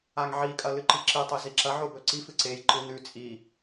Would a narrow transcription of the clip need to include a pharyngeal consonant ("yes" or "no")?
yes